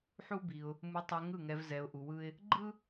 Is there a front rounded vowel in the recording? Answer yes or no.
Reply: yes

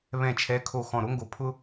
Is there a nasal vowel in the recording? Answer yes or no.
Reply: yes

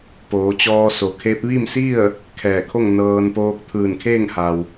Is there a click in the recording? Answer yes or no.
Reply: no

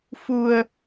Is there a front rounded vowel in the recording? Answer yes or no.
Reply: no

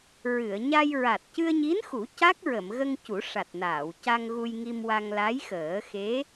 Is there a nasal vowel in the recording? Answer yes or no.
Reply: no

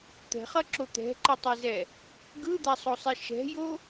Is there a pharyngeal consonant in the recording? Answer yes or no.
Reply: no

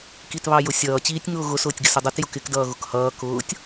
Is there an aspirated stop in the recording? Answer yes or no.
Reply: no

